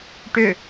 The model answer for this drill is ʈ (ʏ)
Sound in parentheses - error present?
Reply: no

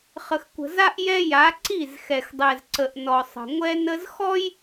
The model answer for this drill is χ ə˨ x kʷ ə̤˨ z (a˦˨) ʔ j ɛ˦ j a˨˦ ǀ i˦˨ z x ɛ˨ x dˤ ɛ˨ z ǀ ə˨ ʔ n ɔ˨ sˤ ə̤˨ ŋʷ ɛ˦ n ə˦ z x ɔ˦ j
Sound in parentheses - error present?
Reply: yes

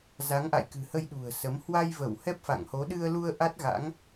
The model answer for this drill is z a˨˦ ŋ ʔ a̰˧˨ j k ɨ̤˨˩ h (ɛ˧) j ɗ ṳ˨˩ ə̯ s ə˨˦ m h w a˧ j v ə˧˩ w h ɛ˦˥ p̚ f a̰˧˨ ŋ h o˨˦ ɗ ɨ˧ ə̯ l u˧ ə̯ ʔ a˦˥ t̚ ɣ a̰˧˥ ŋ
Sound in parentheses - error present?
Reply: yes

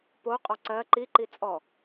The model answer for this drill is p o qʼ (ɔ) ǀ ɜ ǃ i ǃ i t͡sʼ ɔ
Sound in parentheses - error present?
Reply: no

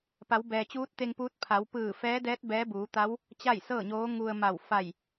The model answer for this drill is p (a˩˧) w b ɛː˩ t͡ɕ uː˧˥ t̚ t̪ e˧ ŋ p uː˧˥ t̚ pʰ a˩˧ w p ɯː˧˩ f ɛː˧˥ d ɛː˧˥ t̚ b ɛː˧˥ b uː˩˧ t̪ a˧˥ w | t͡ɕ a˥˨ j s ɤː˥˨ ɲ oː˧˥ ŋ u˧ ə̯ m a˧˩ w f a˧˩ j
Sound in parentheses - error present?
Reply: no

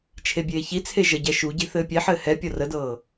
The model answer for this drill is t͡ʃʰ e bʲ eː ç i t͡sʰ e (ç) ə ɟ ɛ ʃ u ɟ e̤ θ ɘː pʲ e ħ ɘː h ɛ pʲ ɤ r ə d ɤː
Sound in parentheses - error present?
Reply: yes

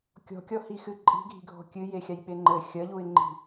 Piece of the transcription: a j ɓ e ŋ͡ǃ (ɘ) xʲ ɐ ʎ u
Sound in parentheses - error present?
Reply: no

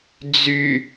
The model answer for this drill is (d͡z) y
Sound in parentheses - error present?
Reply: no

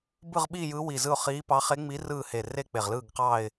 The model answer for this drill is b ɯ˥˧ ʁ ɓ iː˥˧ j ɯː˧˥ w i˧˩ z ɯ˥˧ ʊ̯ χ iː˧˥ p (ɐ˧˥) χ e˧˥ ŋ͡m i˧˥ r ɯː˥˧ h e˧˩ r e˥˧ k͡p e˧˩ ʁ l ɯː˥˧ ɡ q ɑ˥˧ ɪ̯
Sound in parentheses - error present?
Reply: yes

